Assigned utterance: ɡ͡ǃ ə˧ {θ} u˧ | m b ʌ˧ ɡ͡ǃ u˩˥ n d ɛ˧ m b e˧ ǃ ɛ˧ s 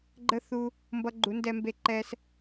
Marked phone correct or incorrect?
correct